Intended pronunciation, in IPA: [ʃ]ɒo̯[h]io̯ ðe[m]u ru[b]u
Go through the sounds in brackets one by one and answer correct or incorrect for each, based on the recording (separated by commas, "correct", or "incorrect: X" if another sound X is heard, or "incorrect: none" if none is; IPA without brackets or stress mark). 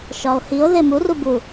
correct, correct, correct, correct